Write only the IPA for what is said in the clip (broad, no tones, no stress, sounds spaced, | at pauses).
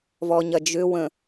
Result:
v ɔ ɲ ɐ d͡ʒ ʏ w ə̃